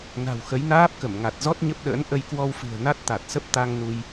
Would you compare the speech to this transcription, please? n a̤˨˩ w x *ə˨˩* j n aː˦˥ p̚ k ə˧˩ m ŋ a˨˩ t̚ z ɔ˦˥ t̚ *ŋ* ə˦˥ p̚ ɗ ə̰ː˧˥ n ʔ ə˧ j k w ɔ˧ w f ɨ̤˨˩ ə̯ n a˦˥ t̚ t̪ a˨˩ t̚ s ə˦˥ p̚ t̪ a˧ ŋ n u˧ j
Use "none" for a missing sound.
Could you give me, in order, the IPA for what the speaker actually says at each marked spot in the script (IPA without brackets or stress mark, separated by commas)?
ə˨˦, ɲ